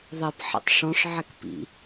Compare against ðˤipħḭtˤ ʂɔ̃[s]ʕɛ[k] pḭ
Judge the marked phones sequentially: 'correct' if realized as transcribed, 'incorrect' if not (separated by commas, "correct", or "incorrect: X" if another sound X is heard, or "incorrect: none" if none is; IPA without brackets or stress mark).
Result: incorrect: ʂ, correct